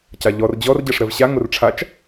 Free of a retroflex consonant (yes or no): no